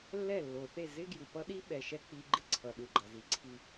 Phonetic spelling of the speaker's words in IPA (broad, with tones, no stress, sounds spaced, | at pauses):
lː ɛ˦˨ lː o˨ θ e˦˨ z ɪ˦ ɡ j u˨ p ʌ˦ ɗ i˦ ɓ ɛ˨ ʃ ɛ˦ k͡p i˧ ɡ͡ǃ ɪ˦ ǀʰ ʌ˨ ɗ u˨ ɡ͡ǃ ʌ˨ z i˨˦ ǀʰ i˦˨